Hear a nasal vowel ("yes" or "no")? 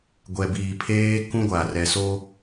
yes